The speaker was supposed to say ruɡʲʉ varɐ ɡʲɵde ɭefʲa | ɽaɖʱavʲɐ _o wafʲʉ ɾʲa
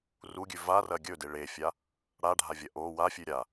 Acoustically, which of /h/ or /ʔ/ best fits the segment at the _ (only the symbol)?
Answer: ʔ